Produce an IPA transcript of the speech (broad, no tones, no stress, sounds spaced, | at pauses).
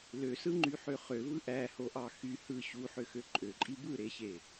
l ø s ɯ ŋ͡ǃ y ħ ø χ ø v ɯ ʔ æ h o ʔ ɑ x y h ɯ ɕ u ħ ø x ø ǃʼ ø ǃʼ i b ɯ ɾ e ɕ e